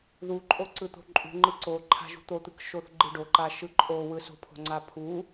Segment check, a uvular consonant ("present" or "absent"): absent